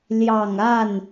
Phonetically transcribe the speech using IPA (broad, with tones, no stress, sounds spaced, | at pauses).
l j ɑ˨˩ ŋ a˥˩ n